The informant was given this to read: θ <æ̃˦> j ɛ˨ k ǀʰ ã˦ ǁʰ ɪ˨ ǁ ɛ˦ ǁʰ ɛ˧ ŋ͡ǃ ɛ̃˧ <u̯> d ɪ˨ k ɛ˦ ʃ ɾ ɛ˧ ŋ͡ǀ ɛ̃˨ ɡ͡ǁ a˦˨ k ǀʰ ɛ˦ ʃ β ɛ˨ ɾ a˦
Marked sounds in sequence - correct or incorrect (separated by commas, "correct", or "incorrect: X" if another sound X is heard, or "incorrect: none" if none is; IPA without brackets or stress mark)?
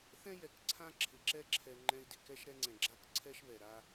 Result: incorrect: ɛ̃˦, incorrect: i̯